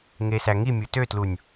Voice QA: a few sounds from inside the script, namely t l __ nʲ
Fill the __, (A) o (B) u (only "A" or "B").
B